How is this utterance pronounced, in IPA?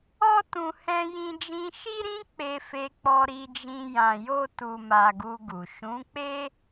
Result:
ɔ˦ t ũ˧ h ɛ̃˧ j ĩ˧ d͡ʒ ĩ˧ ʃ i˦ ɾ ĩ˦ k͡p e˧ f e˧ k͡p ɔ˧ ɾ i˧ d͡ʒ ĩ˧ j ã˧ j o˦ t u˧ m a˧ ɡ u˧ ɡ u˨ ʃ ũ˨˦ k͡p e˦

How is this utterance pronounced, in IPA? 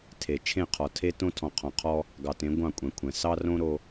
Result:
tʰ e˨ t͡ʃʰ ẽ˦˨ qʰ ɔ˨ tʰ e˦ t õ˦ tʰ ɔ̃˨ qʰ ɔ̃˨ qʰ ɔ˦ | ɡ ɑ˨ t ẽ˨˦ ɡʷ ɑ̃˦˨ kʷʼ ɛ̃˨ kʷʰ ɛ̃˨ s ɑ˦ r õ˦ ɾ o˦

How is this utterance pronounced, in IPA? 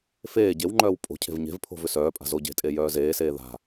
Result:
f eː ɟ e w ŋ͡ǃ œː w pʼ o̤ cʰ e̤ v ɲ e̤ v pʰ o̤ v ʏ s œː pʼ a̤ z o ɟ e̤ tʼ e j œː z eː s eː ð a̤

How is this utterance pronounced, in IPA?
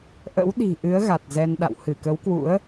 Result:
ʔ ə̰˧˥ w ɗ i̤˨˩ ʔ ɨ˨˦ ə̯ ɣ a˨˩ t̚ z ɛ˧ n ɗ a̰˧˨ w h ɨ˧˩ k ə˨˦ w k w ṵ˧˥ ə̯

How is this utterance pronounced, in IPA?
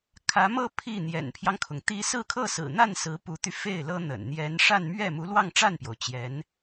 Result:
kʰ ä˧˥ m ɤ˥˧ pʰ i˥˩ n̪ j ɛ̰˨˩ n pʰ j ɑ˦ ŋ kʰ ʊ˩ ŋ t̪ i˥ s ɹ̩˥˧ kʰ ɤ˥˩ s ɹ̩˨˩ n̪ a˥˩ n s ɹ̩˧˥ p u˧˥ t̪ y˧ f e˥˩ ɪ̯ l ɤ˥ n̪ ə̰˨˩ n n̪ j ɛ˧˥ n ʂ a˥˧ n m ɥ ɛ˥˩ m u˧˥ l w ɑ˥˧ ŋ ʈ͡ʂ a˥˩ n p j o˩ ʊ̯ t͡ɕ j ɛ˧˥ n

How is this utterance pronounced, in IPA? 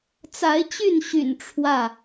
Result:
t͡s a˨˦ ɪ̯ t͡ɕ y˥˨ n ɕ y̰˨˩ n ʈ͡ʂʰ w ä˥˨

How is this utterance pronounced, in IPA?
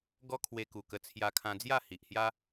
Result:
ɡ ɔ˦ kʰ w e˧ k u˨˩ k ə˧ t͡sʰ j a˧ kʰ ã˧ d͡z j a˥˧ h i˨ ʔ h j a˦

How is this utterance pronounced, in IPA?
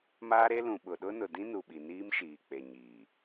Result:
m aː˦ ɾ e˦ l ũ˨ ɓ ʊ˨ ɗ ʊ˦ n ʊ˨ d ĩ˦ n u˨ ɓ i˨ n iː˦ m ʃ iː˨ k͡p e˨ ɲ iː˨

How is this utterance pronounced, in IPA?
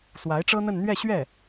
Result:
s w a˧˥ ɪ̯ ʈ͡ʂ ɤ˥ n̪ ə˥˧ n n̪ ɥ ɛ˥˧ ɕ ɥ ɛ˥˩

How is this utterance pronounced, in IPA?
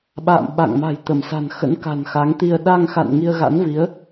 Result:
ɓ a̰ː˧˨ m ɓ a̰˧˨ ŋ m a̤˨˩ j t̪ ə˧˩ m s a̤˨˩ n x ə̰˧˥ n k a̤˨˩ n x a˨˦ ŋ t̪ i˧ ə̯ ɗ a˧ ŋ x a̰˧˨ n ŋ i˧ ə̯ ɣ a̰˧˥ n v i˨˦ ə̯

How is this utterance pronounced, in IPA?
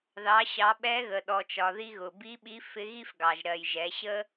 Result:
ð ɑ˩˧ ɕ ɑ˩˧ ɓ ɛ˧˥ ɣ ə˩ ɗ ɔ˩ t͡ʃ ɒ˩ ð i˧ ɣ ʊ˩ b i˧˥ ɓ i˧˥ f ɪ˧˥ ɣ i˥ f ɡ ɑ˩ ʒ ɾ ɜ˩ j ʒ ɛ˩˧ ɕ ə˥

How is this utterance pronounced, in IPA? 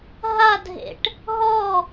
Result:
ɦ a dʱ ḛ ʈ | ɦ ɔ

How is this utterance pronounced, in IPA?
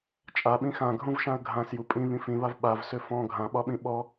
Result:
t͡ʃʼ a ɓ ĩ x ã ɡʱ ũ v ʃ ã ə̯ ɡʱ ã s j u pʼ ĩ β ĩ f ĩ β a v ɓ a v s ø f ɔ̃ ɡʱ ã ɓ ɒ ɓ ĩ ɓ ɔ

